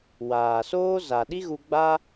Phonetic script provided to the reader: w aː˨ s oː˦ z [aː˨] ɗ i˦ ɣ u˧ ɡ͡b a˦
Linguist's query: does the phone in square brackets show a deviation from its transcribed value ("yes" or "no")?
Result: yes